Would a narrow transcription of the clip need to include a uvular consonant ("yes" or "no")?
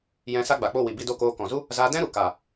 no